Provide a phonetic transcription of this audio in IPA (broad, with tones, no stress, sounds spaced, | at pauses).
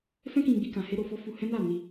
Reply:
f ɛ̃˦ k ĩ˧ ɡ͡b i˧ k ã˧ h e˦ ɾ o˧ f ɔ˦ f u˧ h ɛ̃˦ n a˦˨ n i˧